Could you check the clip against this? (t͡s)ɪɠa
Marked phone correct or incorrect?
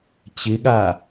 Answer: incorrect